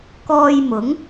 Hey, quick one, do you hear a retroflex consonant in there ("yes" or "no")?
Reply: no